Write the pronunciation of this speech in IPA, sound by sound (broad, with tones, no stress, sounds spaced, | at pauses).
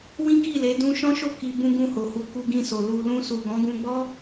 w ĩ˦ k i˦˨ l e˨˦ d ũ˧ ʃ ɔ̃˦ ʃ o˦˨ k i˧ b ũ˧ ɡ ũ˧ h o˨ h u˨˦ k u˧ ɡ ĩ˧ s o˨ l u˨ l ũ˧ s u˨ ɡ ɔ̃˨˦ ɡ ũ˧ ɡ͡b ɔ˦